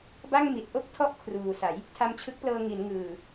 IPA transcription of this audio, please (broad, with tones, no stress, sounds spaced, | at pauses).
b a˥˩ ŋ m i˨˩ t̚ ʔ o˥˩ k̚ tʰ ɔ˦˥ ʔ kʰ r uː˨˩ s a˩˦ j | tʰ a˧ m t͡ɕʰ ɯ˦˥ k̚ p l ɤː˧ ŋ i˩˦ n ŋ ɯː˨˩